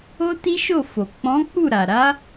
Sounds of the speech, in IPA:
o˦ t i˦ ʃ o˦˨ f o˨ k͡p ɔ̃˨˦ k͡p u˦˨ ɾ a˨ ɾ a˨˦

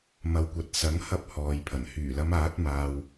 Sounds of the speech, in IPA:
m ɐ˨ w kʷ ɐ˨ t̚ s ɐ˨˥ ŋ h ɐ˧ p̚ h ɔː˨ j pʰ ɐ˨˩ n h yː˨˩ l ɐ˨˧ m aː˨˥ t̚ m aː˨ w

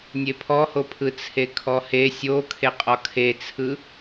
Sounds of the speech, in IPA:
nʲ e pʰ ɔ h o pʰ ɯ t͡sʰ e kʰ ɔ h e sʲ o kʰ e qʼ ɔ kʰ e t͡sʰ ɯ

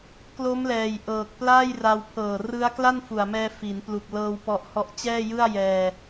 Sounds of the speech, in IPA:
k l o˦˥ m l ɛː˨˩ j ʔ ɤː˨˩ k̚ p l aː˥˩ j r a˧ w pʰ ɤː˨˩ r ɯ˦˥ a̯ k l a˥˩ n f u˨˩ a̯ m ɛː˧ f i˩˦ n p l u˨˩ k̚ l ɤː˧ w p ɔ˦˥ ʔ h ɔ˥˩ ʔ t͡ɕ ɛː˥˩ j ɯ˥˩ a̯ j ɛː˧

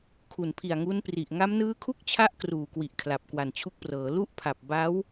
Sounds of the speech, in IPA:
kʰ u˨˩ n pʰ i˨˩ a̯ ŋ u˦˥ n p r i˨˩ ʔ ŋ a˦˥ m n ɯː˦˥ kʰ u˥˩ k̚ t͡ɕʰ a˦˥ ʔ k r uː˨˩ k w i˨˩ ʔ kʰ l a˨˩ p̚ k w a˨˩ n t͡ɕʰ u˦˥ k̚ p r ɤː˩˦ l u˦˥ ʔ pʰ a˨˩ p̚ b a˦˥ w

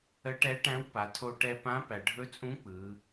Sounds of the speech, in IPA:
ə˧˥ ʈ ɛ˧˥ ʈ æ̃˧˥ w p a˩˧ tʰ o˧ ʈ ɛ˧ p ã˧˥ p æ˩ ɖʱ ɵ˧˥ t͡sʼ ũ˧˥ k͡p ɯ˩˧

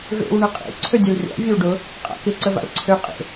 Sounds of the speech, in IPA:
v ḛ w ɳ ə qʼ ḛ ǀʰ ø dʲ ʊ l rʲ a̰ vʲ ə w ɖ ʊ | qʼ a̰ k ɪ ǀ ə v a̰ l ǀʰ ø qʼ ḛ

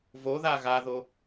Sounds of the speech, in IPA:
v o ð a ɣ a ð o

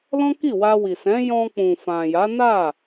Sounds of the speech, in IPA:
l ɔ̃˦ k i˦˨ w a˧ w i˨ s ɛ̃˨˦ j ɔ̃˧ k͡p ũ˨ f ã˨ j a˨˦ n a˦˨

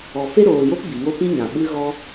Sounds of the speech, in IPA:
ɔ˨ f e˦ ɾ oː˨ j o˦ p b i˨ ŋ o˦ p ĩ˦ ɲ ã˨ ɓ ɨ˦ ɣ ɔ˦

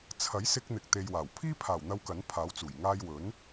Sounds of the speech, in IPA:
t͡sʰ ɐ˨˥ j s ɪ˧ k̚ n̪ ɪ˨ k̚ t̪ e˨ j w aː˨˩ w pʰ iː˥ pʰ aː˨˩ w n̪ ɐ˧ w k ɐ˨˥ n pʰ aː˨˥ w t͡s uː˨˩ j ŋ aː˧ j w ɵ˨˥ n

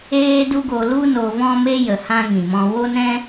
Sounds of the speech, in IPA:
eː˦ d u˦ ɡ o˧ l u˦ n o˧ v ɔ̃˦ m e˦ j ə˨ h ã˦ ŋ ĩ˨ m ɔ̃˧ w o˦ n ɛ̃˦

